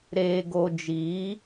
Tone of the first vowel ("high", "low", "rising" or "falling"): low